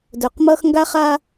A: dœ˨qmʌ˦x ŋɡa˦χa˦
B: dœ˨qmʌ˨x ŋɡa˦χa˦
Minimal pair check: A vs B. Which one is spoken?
A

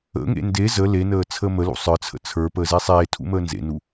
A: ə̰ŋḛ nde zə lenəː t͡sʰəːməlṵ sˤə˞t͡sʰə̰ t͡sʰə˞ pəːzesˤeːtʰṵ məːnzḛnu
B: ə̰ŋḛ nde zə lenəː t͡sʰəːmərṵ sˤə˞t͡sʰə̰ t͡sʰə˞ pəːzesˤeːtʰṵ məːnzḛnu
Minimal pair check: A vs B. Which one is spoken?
A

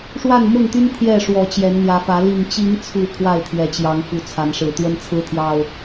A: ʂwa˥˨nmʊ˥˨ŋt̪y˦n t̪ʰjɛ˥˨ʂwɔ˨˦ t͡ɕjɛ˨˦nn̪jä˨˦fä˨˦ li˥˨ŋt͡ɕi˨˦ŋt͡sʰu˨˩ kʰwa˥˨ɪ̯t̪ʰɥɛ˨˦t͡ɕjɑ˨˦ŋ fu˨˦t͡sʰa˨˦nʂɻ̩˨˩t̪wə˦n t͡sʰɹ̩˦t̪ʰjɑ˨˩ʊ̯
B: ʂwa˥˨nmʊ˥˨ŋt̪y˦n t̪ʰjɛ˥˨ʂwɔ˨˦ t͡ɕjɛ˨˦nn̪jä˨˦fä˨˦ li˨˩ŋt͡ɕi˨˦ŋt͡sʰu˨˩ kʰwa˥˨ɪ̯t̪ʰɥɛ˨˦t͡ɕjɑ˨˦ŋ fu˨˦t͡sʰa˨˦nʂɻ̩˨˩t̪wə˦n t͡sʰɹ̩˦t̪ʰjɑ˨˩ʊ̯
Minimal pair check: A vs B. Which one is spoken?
B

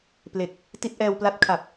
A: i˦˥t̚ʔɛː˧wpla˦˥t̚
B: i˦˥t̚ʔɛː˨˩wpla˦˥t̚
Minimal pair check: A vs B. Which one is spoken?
A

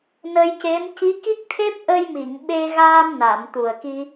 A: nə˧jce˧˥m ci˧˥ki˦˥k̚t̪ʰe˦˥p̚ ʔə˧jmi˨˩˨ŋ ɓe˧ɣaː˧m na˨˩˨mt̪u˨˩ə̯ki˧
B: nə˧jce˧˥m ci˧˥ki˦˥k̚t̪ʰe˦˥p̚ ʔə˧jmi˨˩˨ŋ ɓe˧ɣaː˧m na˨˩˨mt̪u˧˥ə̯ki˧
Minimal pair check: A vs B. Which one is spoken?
A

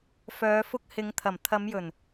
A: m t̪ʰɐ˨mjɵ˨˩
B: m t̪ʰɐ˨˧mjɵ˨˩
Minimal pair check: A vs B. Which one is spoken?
B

